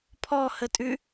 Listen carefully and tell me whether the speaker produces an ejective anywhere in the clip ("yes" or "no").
yes